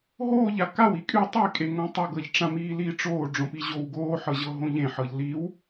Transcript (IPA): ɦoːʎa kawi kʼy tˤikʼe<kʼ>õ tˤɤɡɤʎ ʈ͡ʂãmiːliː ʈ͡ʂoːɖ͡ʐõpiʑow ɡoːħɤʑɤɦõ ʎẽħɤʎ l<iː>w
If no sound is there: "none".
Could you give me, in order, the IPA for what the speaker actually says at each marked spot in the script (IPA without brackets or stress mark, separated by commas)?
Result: ŋ, i